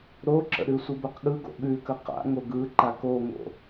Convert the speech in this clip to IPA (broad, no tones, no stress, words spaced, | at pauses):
ɾoǁə̰ ɾʉsʷəbəqɠɯ ɡo̰ɠʉkə qa̰ŋo ɡɯǃak oŋo̰